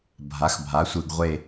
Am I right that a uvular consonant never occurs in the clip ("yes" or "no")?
no